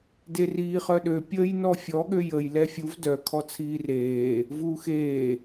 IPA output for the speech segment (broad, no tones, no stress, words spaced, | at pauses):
deriːχœɗø pʲəːjnɔfʲɔ ɠøjəj lɛfʲuv dœ kʰɔt͡sʰiːreː | vuːxeː